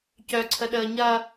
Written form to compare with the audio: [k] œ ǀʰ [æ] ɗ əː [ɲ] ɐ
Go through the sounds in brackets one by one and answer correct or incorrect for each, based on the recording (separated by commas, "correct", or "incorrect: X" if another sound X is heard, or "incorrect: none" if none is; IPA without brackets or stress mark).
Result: incorrect: c, incorrect: ə, correct